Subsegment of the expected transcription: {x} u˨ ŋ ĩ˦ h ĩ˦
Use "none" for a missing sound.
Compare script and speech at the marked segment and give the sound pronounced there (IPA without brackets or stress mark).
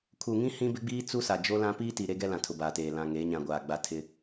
kʰ